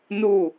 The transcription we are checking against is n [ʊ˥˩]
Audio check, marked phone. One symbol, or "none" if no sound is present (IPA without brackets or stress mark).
u˥˩